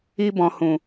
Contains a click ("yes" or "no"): no